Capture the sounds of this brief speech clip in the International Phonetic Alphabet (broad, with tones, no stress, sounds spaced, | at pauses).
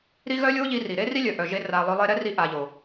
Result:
ɾ i˦ ɣ œ˦ lʲ o˦ ʎ i˧ r i˨ ɾ e˦ r i˦ lʲ œ˨ ʔ œ˨ ʒ e˧ r a˨ lˠ œ˧ lˠ e˧ ɾ ɛ˦ r i˧ ʔ a˨ ʎ o˨